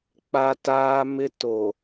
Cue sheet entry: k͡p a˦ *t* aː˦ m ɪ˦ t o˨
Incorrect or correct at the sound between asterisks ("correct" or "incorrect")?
correct